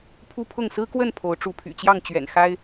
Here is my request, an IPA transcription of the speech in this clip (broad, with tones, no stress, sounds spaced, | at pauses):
pʰ u˦ pʰ ʊ˥˨ ŋ s ɹ̩˦ k w ə˥˨ n pʰ o˨˦ ʊ̯ ʈ͡ʂ u˨˦ pʰ y̰˨˩ t͡ɕ j ɑ˥˨ ŋ t͡ɕ ɥ ɛ̰˨˩ n x a˦ ɪ̯